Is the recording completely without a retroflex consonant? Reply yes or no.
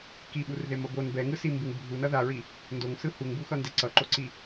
yes